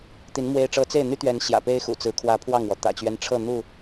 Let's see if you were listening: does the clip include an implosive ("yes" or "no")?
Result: no